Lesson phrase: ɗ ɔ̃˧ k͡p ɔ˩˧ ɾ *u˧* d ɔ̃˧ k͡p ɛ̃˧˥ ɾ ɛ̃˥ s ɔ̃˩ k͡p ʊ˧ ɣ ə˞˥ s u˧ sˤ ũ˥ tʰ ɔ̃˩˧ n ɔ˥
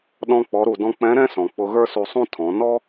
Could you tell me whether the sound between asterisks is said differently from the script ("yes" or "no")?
yes